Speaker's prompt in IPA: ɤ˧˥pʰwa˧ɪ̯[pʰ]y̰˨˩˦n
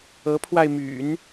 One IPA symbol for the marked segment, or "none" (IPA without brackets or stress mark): m